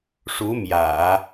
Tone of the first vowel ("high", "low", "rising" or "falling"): rising